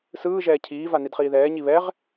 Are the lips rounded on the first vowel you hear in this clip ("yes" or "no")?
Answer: no